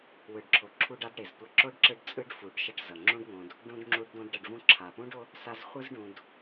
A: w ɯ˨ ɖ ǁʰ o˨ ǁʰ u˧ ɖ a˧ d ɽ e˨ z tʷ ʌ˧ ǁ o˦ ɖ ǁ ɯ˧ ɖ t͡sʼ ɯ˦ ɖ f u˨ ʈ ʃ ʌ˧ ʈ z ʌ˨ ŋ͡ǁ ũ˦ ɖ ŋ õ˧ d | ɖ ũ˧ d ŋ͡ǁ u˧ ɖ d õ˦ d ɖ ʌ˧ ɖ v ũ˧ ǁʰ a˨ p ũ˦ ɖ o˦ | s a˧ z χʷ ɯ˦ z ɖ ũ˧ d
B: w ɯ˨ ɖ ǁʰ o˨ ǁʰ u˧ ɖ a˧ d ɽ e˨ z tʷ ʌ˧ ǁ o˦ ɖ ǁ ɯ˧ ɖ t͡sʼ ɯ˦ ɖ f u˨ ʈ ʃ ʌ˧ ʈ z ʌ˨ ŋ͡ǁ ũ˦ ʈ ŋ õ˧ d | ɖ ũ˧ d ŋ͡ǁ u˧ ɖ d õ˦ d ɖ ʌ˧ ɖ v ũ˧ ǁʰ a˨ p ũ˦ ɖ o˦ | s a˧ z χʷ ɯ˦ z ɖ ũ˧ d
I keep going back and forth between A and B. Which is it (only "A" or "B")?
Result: A